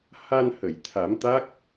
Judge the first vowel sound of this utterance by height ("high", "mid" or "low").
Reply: low